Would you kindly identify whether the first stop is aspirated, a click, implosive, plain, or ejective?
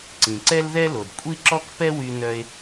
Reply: click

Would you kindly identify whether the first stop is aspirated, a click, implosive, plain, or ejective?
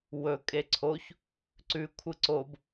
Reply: ejective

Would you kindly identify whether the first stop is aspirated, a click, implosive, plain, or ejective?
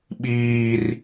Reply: implosive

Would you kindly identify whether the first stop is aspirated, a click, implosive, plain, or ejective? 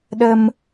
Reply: implosive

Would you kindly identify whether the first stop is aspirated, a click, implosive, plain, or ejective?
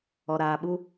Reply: implosive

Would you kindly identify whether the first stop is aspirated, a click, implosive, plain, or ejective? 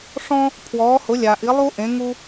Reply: aspirated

